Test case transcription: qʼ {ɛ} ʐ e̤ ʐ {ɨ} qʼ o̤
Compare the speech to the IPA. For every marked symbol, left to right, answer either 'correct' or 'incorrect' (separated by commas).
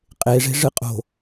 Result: incorrect, correct